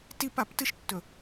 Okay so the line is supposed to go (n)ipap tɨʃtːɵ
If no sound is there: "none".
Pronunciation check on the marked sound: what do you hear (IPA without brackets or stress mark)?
t